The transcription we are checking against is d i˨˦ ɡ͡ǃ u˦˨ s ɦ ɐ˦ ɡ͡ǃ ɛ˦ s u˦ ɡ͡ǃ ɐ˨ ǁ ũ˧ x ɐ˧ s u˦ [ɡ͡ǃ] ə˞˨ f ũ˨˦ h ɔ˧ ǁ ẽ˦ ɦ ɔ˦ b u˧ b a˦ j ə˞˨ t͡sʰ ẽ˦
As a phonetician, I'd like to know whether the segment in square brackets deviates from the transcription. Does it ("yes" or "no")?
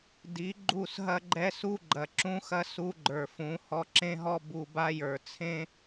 no